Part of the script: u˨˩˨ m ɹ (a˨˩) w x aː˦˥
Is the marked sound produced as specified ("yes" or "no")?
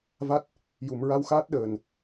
no